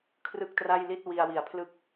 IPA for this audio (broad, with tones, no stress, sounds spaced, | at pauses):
kʰ r ɯ˥˩ k̚ t r a˥˩ j l i˥˩ t̚ w i˧ a̯ w i˨˩ a̯ pʰ l ɯ˥˩ k̚